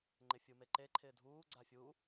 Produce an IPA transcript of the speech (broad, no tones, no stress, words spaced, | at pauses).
ŋ͡ǃɪfʲumeǃe ǃʰɪːdʱuː ɡ͡ǀafʲu